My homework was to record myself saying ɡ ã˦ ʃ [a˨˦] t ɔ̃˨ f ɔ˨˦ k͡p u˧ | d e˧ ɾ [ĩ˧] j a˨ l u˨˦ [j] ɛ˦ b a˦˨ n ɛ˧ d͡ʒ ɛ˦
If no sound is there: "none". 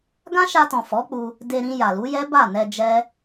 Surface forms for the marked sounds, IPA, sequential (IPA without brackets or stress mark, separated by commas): a˧, ĩ˧, j